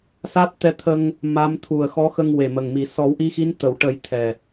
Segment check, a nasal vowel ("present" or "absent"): absent